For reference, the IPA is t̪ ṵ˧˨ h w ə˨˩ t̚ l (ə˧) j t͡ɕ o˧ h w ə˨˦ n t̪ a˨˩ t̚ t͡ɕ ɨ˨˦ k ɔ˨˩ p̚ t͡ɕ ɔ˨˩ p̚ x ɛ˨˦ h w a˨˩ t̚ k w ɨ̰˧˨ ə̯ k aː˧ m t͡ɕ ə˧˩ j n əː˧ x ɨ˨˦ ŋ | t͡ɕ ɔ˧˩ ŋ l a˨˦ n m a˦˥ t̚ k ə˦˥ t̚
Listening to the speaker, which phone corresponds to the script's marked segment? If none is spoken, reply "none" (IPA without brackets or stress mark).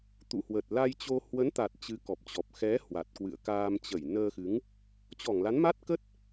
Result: a˧